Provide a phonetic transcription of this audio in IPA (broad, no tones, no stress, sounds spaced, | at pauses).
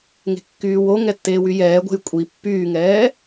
ŋ e̤ kː yː w o ŋ ɛ tː eː w y j ɛː ɡʷ ɛ̤ j kʷʼ i pː yː ŋ ɛː